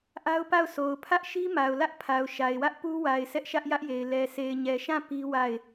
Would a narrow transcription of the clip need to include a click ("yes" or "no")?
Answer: no